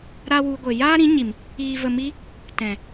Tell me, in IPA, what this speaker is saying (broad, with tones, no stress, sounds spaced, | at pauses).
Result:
ɾ a˦ w u˧ ɡʷ e˨ j aː˦ ɾ ĩ˨˦ ɲ i˨ m | iː˨ v ə˨ m i˧ | t ɛ̃˨